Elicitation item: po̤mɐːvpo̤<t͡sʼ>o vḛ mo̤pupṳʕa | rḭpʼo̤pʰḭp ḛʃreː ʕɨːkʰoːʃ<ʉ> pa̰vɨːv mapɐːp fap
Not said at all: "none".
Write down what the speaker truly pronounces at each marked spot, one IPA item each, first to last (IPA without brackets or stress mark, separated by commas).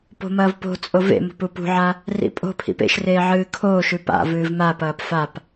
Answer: t͡sʼ, ʉ